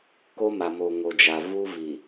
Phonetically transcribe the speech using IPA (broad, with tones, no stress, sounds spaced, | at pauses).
k o˦ m a˨ m o˨ ŋ o˨ d͡ʒ a˨ v u˦ v i˨